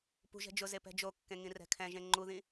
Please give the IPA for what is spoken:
pṳ ʒɛ̤d͡ʒʊze pɛ̤d͡ʒokːẽ ŋĩrɛ̤kʰɛ̃ʒẽ ŋ͡ǃuðĩ

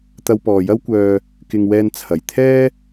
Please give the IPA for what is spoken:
t̪ɐ˧wpɔː˨jɐ˥wkʷœː˧ | kɪ˧ŋ wɛː˧nt͡sʰɐ˨˩jt̪ʰɛː˥

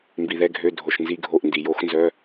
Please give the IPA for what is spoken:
mbi˩ðɛ˩˧˩ɡʱø˩˧˩ dʱo˩ʃnzi˧˩˧ɡʱo˩˧˩ʔndi˩ jo˧˩˧xnzœ˩˧˩

